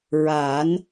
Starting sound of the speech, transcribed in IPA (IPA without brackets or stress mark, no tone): ɹ